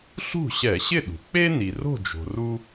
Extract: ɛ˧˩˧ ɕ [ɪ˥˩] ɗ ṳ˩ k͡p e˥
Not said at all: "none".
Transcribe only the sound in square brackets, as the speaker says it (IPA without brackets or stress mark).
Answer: ɪ˥˩